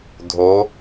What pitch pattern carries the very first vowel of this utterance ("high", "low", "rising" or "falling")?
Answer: rising